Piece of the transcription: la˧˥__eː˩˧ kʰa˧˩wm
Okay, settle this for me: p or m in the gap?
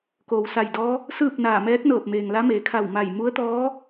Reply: m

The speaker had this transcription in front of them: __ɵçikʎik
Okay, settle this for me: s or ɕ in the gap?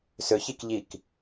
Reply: s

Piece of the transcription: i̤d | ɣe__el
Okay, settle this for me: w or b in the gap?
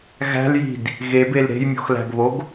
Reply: b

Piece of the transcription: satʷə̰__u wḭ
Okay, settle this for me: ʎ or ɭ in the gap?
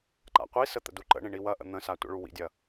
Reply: ɭ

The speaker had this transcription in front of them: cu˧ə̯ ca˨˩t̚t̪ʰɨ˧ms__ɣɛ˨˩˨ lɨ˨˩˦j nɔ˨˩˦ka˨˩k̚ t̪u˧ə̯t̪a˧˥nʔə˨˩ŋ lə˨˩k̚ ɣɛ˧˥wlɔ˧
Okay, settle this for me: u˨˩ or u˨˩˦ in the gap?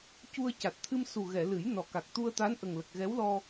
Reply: u˨˩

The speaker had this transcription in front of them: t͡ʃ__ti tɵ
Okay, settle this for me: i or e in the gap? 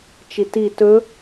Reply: i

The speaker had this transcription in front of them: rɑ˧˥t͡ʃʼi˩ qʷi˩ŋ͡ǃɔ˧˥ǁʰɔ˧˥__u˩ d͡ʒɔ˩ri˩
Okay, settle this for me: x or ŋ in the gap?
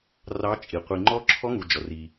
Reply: ŋ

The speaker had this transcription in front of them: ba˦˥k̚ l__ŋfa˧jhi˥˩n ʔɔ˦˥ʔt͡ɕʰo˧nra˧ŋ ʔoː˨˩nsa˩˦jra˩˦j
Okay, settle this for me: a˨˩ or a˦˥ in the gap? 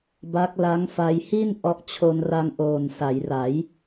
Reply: a˦˥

